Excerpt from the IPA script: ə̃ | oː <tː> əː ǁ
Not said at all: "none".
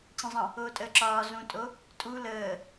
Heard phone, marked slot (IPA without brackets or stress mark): tʼ